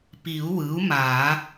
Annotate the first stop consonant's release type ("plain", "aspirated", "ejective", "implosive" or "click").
plain